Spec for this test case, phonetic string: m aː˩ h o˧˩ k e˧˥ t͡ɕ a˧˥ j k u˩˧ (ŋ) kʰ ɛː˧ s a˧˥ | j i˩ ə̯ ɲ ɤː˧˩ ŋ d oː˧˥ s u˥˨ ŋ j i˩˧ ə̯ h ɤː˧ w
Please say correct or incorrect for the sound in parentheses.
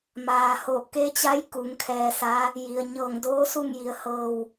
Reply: correct